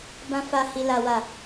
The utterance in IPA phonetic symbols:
b ã˦ f a˦ h i˦ l a˦ w a˦˨

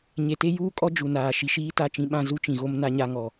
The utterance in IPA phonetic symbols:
ɲ e˨ t e˦ j uː˦ kʼ ɔ˦ d͡ʒ u˨ n aː˨ ʃ i˨ ʃ iː˦ t a˦˨ t͡ʃ ĩ˦ ɓ ã˦ z u˦ t͡ʃ ĩ˨ ɣ o˦ m n a˦ ɲ a˦ ŋ ɔ˨

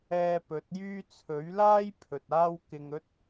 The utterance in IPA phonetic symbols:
ɛː˧ p ɵ˨˥ t̚ j yː˥ t͡sʰ ɵ˨˥ ɥ l aː˥ j pʰ ɵ˨ t̚ aː˥ w k ɪ˧ ŋ ɵ˥ t̚

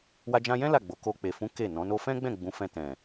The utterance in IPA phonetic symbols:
w a˧ d͡ʒ ã˧ j ɛ̃˦ l a˦˨ ɡ͡b o˨˦ k o˧ k͡p e˨ f ũ˨˦ k e˦˨ n ɔ̃˨˦ n o˧ f ɛ̃˦ ɡ͡b ɛ̃˦˨ ɡ͡b ũ˨˦ f ɛ̃˧ t ɛ̃˨

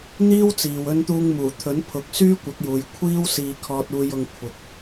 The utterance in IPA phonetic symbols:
n̪ iː˥ w t͡s iː˨ w ɵ˧ n t̪ uː˧ ŋ m uː˨˩ t̪ʰ ɵ˨˥ n pʰ ʊ˨˥ k̚ s yː˥ kʷ ɐ˨˥ k̚ j uː˨ j kʷʰ iː˥ w s iː˧ kʰ ɔː˧ t̚ uː˧ j ʊ˧ ŋ kʷʰ ɪ˨ k̚

